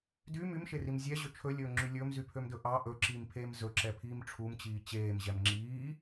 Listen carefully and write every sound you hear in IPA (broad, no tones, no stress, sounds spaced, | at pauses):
d y m y m ʃ e r i m zʲ ɛ ʑ ø t͡ʃʰ ɵ lʲ ɵː ŋ͡ǁ y lʲ ɵː m z y pʰ ø m d ɵ ʔ ɑ ʔ ɵ ǁ iː m pʰ eː m z ɵ ǁ ɛ pʰ iː m ʈ͡ʂʰ u m t͡ɕ iː t͡ɕ eː m ʑ ɛ m ŋ͡ǁ iː